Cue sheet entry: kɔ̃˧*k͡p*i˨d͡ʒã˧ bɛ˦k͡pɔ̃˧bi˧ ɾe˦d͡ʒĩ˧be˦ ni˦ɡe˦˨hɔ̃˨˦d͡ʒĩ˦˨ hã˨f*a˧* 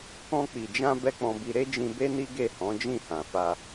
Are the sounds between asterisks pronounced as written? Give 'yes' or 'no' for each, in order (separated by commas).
yes, yes